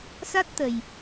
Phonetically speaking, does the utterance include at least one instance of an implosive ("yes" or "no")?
no